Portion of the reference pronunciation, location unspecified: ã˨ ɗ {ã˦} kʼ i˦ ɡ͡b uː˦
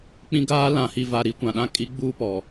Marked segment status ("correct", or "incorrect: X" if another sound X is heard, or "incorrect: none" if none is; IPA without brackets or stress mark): correct